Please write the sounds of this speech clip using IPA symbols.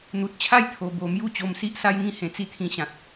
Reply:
n̪ u˨ t̚ t͡ɕʰ a˦ j t̪ʰ o˨˩ b o˨˩ m j u˥˧ t͡ɕ o˧ m s i˦ ʔ s a˦ j ŋ ĩ˥˧ h ẽ˨˩ t͡s i˦ t̪ʰ ĩ˧ ɕ ã˨ t̚

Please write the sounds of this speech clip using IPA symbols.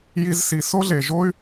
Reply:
j i˧ z s i˩˧ s o˥ ɮ e˩ ʒ o˥ y̯

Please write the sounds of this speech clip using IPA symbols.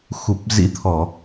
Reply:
x u˨˩ p̚ z ḭ˧˥ t̪ʰ ɔ˧˩˨

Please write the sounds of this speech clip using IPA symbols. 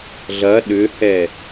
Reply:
ɮ ɐ ɗ ʏ h ɛ

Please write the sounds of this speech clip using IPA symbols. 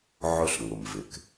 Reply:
ʕ ʊ˦ ɬ ŋ ʊ˨ m v ɪ˨ k

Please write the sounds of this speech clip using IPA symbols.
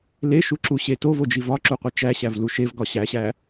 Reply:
l e ʃ u ǁ u ɕ e t o v o d͡ʒ i v ɒ ǁ u qʷ i t͡ʃ æ ɕ æ v l u ʃ e v ɡ ɒ ɕ æ ɕ æ

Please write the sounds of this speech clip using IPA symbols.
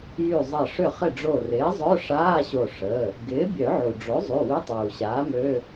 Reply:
j y˧˩ zˤ ɐ˧˩ ʂ ʏ˧˩ χ ɪ˧˩ ɖ͡ʐ o˧˩ r ɪː˩˥ zˤ œ˧˥˧ ʂ aː˧˥˧ ɕ o˧˩ ʂ ə˩˧˩ | ɡ ɪː˩˥ bʲ œ˨˩˦ ʕ u˩ ɖ͡ʐ o˩˥ zˤ y˩˧˩ w ɪ˧˥˧ tˤ uː˩ ɕ aː˩˥ m ø˧˥˧

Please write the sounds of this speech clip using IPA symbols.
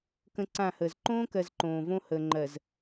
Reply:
k ə̃˦ ǀ ã˦˨ h əː˨ z ǃ õː˦ k ɜ˨ z ǃ õː˨ v õ˦ h əː˨ ŋ͡ǃ ɜ˨ z

